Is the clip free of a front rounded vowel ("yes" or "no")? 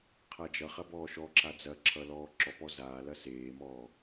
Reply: yes